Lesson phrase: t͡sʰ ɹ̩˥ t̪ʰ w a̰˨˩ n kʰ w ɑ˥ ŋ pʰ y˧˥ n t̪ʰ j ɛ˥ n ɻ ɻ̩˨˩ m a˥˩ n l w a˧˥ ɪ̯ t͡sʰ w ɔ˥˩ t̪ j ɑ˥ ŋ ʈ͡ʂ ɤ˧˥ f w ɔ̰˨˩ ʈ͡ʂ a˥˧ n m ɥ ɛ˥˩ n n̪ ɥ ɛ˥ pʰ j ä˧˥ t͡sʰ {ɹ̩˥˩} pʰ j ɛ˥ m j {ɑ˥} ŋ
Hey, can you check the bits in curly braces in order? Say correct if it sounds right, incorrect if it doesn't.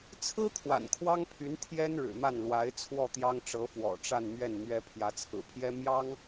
incorrect: ɹ̩˨˩, correct

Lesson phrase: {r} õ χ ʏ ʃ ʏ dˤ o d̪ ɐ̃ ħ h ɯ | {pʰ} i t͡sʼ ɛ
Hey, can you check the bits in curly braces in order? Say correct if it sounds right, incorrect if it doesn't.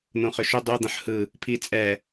incorrect: n̪, correct

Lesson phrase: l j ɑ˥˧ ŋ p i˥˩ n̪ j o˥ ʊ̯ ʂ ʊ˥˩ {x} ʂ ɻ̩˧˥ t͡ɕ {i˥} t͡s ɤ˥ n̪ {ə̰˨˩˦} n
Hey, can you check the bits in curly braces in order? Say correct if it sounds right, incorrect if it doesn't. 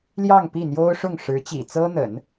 incorrect: ŋ, incorrect: ḭ˨˩, correct

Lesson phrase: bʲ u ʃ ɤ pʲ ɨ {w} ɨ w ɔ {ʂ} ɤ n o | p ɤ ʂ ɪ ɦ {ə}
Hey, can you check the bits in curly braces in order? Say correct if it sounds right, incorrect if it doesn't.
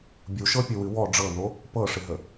correct, incorrect: ɖ͡ʐ, correct

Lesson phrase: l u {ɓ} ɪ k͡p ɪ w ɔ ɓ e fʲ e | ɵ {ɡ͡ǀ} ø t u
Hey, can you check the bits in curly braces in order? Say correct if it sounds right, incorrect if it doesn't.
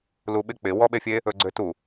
correct, correct

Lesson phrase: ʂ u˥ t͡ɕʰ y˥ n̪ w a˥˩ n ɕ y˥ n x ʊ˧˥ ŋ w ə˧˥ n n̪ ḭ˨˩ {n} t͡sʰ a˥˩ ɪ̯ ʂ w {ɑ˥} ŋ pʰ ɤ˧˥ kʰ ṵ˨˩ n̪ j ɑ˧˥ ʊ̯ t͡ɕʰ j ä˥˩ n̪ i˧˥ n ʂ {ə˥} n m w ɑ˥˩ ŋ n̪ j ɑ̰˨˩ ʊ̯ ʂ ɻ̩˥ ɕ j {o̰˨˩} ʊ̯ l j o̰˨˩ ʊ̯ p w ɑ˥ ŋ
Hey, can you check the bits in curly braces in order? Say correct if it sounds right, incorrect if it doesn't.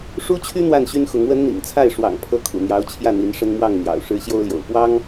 incorrect: ŋ, incorrect: ɑ̰˨˩, correct, incorrect: o˥

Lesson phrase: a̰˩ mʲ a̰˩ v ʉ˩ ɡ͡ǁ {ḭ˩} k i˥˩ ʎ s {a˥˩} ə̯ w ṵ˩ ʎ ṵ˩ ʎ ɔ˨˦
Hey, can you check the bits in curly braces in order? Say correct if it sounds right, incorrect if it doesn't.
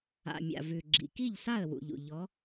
correct, correct

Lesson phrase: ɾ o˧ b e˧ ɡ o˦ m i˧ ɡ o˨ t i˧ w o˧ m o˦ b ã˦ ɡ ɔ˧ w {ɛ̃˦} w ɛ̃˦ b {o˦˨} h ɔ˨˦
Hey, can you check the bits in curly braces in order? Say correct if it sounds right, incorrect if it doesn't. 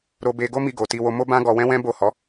correct, correct

